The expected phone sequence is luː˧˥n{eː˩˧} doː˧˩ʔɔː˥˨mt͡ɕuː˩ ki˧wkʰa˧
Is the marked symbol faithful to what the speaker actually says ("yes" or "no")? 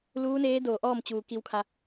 no